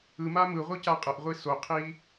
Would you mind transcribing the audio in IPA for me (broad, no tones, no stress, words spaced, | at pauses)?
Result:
ɯma mɯʁʷɯ caqʼəʔʁʷi soqʰi